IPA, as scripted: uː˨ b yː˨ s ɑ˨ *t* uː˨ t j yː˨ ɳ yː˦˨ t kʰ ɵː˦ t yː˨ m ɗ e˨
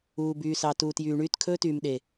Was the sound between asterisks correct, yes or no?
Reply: yes